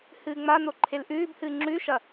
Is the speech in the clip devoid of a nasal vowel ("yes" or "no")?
yes